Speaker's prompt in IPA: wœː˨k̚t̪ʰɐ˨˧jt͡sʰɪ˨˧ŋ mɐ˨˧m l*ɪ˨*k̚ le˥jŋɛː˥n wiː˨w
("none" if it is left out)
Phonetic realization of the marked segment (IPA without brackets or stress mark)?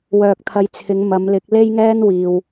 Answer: ɪ˨˥